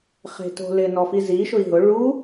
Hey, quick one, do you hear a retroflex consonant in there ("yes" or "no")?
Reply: yes